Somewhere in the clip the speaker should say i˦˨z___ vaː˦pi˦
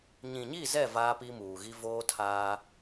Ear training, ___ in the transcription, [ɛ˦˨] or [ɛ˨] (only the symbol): ɛ˦˨